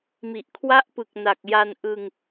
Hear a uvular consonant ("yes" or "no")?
no